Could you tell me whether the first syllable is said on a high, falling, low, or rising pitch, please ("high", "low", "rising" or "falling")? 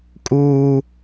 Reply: high